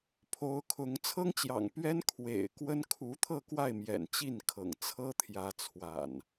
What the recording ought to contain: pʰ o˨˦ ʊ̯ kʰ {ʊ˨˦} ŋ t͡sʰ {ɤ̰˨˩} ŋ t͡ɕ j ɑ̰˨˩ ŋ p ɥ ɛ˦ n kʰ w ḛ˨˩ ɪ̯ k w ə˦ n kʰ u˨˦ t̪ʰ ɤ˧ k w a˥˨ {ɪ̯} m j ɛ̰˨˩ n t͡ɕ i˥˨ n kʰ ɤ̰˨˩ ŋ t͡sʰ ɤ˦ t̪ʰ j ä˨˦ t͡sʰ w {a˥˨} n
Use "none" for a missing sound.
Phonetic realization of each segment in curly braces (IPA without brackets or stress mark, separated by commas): ʊ˨˦, ɤ˦, ɪ̯, a̰˨˩